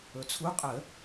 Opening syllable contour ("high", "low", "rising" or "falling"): low